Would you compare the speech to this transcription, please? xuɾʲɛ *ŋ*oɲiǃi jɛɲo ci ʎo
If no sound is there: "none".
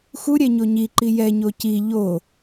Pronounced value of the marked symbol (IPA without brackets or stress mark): ɲ